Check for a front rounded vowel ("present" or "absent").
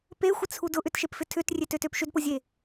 present